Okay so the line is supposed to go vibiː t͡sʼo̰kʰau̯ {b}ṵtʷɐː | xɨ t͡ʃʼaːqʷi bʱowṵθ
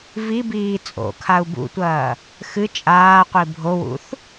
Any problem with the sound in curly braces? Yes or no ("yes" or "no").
no